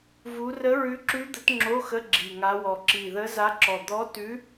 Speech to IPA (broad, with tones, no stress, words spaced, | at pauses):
vu˧˥ rə˧˥ɹʉ˧˥ǁʉ˧˥ d̪ə˧˥tŋ͡ǁo˧˥˧xə˧˥˧ ɡ͡ǁi˧˩ŋa˧˥wɔ˧˩ ǁi˧˩ðə˧˥za˧˥ǁɔ˧˩ d̪ɔ˧˥tʉ˧˥